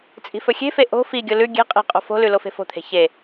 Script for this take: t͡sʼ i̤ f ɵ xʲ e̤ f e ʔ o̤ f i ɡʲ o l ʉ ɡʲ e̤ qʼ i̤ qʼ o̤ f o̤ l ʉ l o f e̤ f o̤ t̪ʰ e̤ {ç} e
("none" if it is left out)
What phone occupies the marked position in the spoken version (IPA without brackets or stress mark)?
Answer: ç